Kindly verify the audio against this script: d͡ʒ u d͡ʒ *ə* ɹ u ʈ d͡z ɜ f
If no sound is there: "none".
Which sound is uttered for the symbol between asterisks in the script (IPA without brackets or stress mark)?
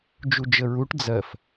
ə